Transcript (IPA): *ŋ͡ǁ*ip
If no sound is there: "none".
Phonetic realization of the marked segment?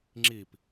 ŋ͡ǁ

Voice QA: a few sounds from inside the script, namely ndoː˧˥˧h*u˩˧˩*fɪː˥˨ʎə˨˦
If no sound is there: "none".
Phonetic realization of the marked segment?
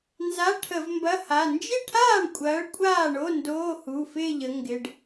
u˩˧˩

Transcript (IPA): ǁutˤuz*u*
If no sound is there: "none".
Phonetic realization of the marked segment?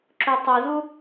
u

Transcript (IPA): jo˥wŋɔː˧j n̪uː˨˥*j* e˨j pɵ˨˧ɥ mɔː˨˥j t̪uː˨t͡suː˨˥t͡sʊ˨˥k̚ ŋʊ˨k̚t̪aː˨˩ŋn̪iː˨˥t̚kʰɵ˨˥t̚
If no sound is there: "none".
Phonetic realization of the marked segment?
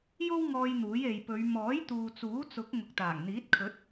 j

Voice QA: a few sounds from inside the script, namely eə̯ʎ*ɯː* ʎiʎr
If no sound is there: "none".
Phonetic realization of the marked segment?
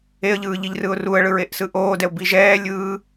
ɯː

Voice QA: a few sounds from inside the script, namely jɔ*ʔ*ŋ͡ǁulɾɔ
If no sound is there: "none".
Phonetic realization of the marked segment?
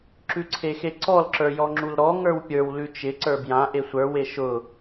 none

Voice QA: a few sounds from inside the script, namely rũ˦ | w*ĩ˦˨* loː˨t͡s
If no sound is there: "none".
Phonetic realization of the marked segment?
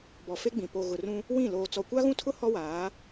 ĩ˦˨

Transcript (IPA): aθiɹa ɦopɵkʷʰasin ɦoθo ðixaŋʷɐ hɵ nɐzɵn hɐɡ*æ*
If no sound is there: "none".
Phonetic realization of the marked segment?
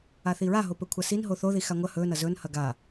a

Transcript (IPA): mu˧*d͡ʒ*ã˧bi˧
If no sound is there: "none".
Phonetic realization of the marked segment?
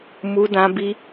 d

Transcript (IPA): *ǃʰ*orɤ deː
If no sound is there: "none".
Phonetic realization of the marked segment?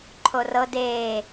ǃʰ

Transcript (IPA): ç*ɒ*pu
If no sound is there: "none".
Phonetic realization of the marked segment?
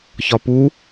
ɒ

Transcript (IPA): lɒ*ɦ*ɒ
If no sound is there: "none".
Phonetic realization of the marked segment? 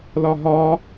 ɦ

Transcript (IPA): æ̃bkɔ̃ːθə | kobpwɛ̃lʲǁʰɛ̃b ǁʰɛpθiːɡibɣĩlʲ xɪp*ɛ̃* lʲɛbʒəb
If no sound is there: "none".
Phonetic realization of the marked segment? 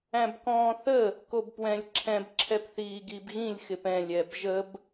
ɛ̃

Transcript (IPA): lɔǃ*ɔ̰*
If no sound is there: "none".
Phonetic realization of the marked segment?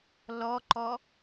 ɔ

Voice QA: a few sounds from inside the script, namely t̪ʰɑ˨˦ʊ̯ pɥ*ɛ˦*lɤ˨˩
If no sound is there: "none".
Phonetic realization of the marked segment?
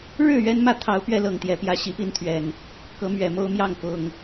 ɛ˦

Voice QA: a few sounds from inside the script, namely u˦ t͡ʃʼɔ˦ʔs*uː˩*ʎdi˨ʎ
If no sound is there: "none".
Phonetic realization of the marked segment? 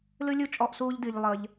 uː˦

